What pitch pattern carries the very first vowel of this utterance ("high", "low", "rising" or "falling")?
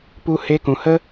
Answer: high